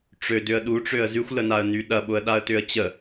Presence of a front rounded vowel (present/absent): present